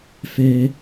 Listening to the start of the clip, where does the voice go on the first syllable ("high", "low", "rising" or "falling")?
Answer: high